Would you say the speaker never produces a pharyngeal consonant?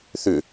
yes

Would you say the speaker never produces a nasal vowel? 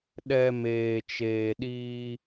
yes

